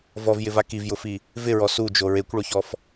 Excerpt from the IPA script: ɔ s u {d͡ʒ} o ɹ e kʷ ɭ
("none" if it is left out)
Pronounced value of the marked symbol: d͡ʒ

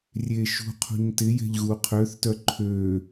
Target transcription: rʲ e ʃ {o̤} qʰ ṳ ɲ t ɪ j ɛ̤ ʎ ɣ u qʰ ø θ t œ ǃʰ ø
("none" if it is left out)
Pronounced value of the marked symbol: ṳ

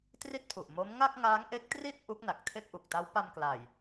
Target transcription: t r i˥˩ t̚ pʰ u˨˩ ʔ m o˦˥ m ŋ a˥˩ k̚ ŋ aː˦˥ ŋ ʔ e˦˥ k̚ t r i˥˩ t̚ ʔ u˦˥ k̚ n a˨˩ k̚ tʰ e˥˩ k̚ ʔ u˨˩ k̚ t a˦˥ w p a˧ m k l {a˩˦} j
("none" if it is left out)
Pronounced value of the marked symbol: a˨˩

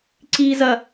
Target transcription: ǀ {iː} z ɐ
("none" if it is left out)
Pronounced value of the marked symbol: iː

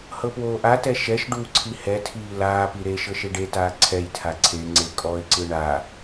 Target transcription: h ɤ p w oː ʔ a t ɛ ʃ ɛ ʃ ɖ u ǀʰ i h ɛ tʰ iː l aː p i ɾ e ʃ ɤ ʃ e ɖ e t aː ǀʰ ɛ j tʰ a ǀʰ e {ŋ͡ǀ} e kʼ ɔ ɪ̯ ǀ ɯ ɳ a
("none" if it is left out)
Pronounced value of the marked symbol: ŋ͡ǀ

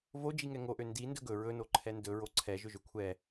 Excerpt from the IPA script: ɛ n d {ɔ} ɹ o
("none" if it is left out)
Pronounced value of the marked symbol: ɵ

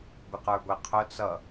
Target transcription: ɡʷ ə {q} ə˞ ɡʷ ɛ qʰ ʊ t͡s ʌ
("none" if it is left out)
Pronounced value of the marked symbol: q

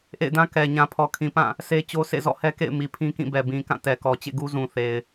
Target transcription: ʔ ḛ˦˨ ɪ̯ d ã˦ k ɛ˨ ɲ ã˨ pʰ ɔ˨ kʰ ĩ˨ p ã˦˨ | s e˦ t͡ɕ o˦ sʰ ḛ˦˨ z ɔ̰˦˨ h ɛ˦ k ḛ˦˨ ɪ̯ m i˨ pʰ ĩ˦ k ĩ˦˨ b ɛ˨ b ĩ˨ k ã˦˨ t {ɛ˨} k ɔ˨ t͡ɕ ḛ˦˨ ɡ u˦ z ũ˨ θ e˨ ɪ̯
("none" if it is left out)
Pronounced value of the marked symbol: ɛ˨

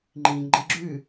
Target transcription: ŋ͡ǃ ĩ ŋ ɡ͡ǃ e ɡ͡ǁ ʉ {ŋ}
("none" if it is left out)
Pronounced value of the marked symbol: none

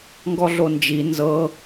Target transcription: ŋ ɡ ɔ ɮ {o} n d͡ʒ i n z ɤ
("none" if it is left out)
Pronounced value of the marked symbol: o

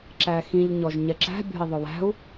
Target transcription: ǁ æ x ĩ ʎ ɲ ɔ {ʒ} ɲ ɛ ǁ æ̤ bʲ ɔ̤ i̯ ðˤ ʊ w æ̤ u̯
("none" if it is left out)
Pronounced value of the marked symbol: ʒ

